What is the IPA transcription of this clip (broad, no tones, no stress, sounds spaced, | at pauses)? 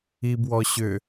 i b w ɔ ɕ ʏ